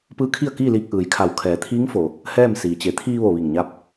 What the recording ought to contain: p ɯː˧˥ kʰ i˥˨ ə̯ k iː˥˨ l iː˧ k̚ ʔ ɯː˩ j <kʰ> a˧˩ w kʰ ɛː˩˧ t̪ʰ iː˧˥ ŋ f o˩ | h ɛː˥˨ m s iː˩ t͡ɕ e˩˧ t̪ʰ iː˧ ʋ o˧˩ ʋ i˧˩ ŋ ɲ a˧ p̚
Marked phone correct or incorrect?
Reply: correct